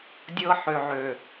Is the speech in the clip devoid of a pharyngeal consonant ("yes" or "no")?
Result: no